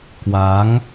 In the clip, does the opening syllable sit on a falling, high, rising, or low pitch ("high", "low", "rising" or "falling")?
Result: rising